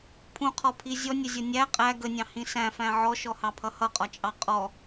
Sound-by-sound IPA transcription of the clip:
pʰ ũ qʰ ɔ pʰ i zʲ ɔ nʲ ə zʲ ʌ nʲ æ qʼ æ ɡ ə nʲ ɑ̃ h ĩ s æ̃ f æ̃ ʕ ɔ ʃ ɔ h ɑ pʰ ʌ h ʌ qʼ ɒ t͡ʃʼ ɑ qʼ ɔ

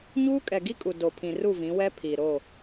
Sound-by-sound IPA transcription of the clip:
ɲ uː˦ kʼ ɛ˨ ɡ i˦ kʼ u˨ d o˨ pʰ ĩ˨ r u˦˨ v ĩ˨˦ w ɛ˦ pʰ i˨ ɾ o˦˨

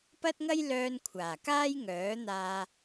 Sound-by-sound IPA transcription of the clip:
p ɐ˥ t̚ ŋ ɐ˥ j l œː˧ n kʷʰ aː˨˩ k aː˥ j ŋ œː˨˥ n̪ aː˧

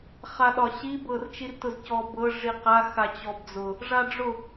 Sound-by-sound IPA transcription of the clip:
χ a ɗ ɒ ɕ i b ɤ r t͡ʃ i r t ʊ z c ɔ b ɤ ʐ i q a x a t͡ɕ ɔ b d͡z ʊ | ʐ a ɖ͡ʐ ʊ

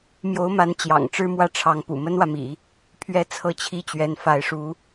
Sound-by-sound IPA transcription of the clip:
m j o˧˥ ʊ̯ m a˧˥ n t͡ɕ j ɑ̰˨˩ ŋ ʈ͡ʂ ɻ̩˥ m w ä˥˩ ʈ͡ʂʰ ɑ˧˥ ŋ p ṵ˨˩ m ə˥ n w ä˨ m ḭ˨˩˦ | pʰ ɥ ɛ˥ t͡sʰ ɤ˥˧ t͡ɕʰ i˥˩ t͡ɕ ɥ ɛ˧˥ n f a˧˥ ɪ̯ ʂ u˧˥

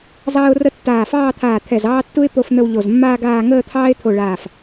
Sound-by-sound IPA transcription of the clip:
z ɑː˥ ʊ̯ r ə˥ tː aː˧˩ f ɑː˥˧ t̪ʰ aː˧˩ t̪ʰ ɛ˧˩ z ɑː˥ tː u˥ ɪ̯ p o˥˧ f n̪ ə˥˧ w ʎ o˧˩ z mː aː˥ ɡ aː˥˧ ŋ əː˥˧ t̪ʰ ɑː˥ ɪ̯ t̪ʰ o˧˩ ɭ aː˧˩ f

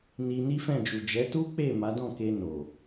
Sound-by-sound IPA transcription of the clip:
n i˧ n i˦ f ɛ̃˦˨ d͡ʒ u˨ d͡ʒ ɛ˨˦ t u˦ k͡p e˦˨ m a˨˦ d ɔ̃˦˨ k e˧ n o˨

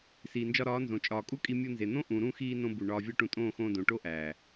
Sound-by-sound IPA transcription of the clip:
s iː˨ n d͡ʒ ɒ˧ ɾ ɒː˨˦ n z õ˨ t͡ʃʼ ɒː˨ kʼ u˦ kʼ i˧ mʲ u˧ n z e˨ n̪ õ˦ ʔ ũ˨ ɾ ũ˦˨ x iː˧ n õ˦ b u˨ ɳ ɒː˧ vʲ ɒ˦ ʈ ũ˧ tʼ õː˦˨ x õː˧ d õ˨ ʈ o˦ ʔ æː˨

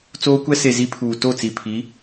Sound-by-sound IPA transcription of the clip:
t͡s oː˦ kʷ ɛ˦ s e˨ z i˦ pʰ uː˨ t o˦˨ t͡s i˨ pʰ i˨˦

